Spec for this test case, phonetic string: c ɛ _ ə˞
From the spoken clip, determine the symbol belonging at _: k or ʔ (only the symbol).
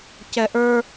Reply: ʔ